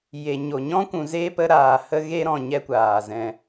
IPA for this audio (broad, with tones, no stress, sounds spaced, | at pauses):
j e˨ ɲ o˨ ɲ ɔ̃˦ kʷ ũ˨ z eː˦ p ə˧ ɾ aː˨ h ə˦ ɣ e˦ ɾ ɔ̃˨ ɲ ɛ˦ kʷ aː˨ z ɛ̃˧